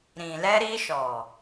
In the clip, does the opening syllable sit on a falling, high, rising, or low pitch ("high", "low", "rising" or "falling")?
low